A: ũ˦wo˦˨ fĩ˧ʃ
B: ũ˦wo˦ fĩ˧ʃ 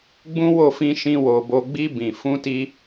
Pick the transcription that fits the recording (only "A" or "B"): A